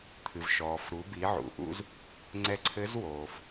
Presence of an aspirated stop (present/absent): present